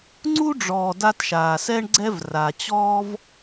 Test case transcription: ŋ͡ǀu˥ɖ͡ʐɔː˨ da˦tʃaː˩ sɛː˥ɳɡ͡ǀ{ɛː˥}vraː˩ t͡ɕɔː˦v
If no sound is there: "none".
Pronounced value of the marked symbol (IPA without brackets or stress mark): ɛ˥